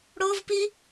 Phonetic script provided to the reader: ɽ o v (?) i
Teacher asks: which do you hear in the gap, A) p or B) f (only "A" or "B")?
A